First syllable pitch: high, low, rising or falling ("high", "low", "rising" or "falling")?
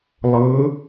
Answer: rising